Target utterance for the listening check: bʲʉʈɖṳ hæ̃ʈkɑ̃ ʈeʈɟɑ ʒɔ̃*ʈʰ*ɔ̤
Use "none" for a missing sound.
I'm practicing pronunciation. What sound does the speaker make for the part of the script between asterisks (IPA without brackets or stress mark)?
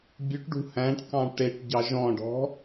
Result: ɖ